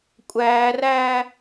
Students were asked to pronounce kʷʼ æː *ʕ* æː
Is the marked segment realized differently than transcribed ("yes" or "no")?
yes